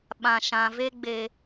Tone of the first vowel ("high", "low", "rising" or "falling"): low